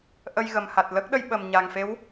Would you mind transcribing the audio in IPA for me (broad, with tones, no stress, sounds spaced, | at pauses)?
ʔ ə˧ j ɣ ə˨˩ m h a˨˩ t̚ l ə˦˥ k̚ ɗ ə˧ j ɓ ə˨˩ m ɲ a˨˩ ŋ f e˧˥ w